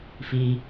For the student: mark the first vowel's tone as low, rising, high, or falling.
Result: low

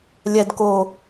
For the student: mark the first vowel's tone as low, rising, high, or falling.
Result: low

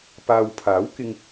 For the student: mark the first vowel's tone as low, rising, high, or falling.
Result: low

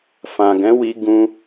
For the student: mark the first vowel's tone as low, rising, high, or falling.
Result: low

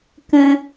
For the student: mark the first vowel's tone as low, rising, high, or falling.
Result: high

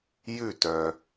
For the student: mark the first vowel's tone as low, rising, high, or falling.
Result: falling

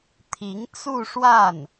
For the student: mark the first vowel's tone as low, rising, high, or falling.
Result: rising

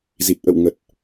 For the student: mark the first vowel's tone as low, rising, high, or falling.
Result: low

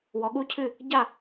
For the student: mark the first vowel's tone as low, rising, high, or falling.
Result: rising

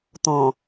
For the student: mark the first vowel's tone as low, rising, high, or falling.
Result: low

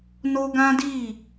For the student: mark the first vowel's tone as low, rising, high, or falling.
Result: high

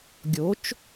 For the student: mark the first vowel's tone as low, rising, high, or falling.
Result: rising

